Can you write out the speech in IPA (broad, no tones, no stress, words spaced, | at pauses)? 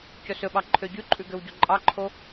cɵsɵɓɑ ǃʰøɟʉǃʼʉ ɡøwɟoǃʼɑǃʰo